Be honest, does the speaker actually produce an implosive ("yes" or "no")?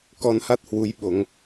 yes